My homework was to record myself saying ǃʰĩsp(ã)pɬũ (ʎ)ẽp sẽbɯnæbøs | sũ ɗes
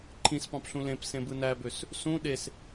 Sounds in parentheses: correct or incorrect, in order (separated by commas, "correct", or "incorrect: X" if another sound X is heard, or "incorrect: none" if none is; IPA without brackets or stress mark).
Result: incorrect: ɑ̃, incorrect: l